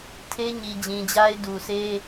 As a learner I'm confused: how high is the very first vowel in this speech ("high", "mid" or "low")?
mid